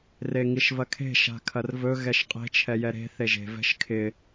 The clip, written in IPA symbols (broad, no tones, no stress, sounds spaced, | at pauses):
r e ŋ i ʃ v ɐ kʰ e̤ ʃ a̤ kʰ ɐ r v ɵ ɣ ɛ ʃ qʼ e̤ t͡ʃʰ ɛ j ɛ ɾ e̤ θ e ʒ e̤ v ɛ̤ ʃ kʰ ɪ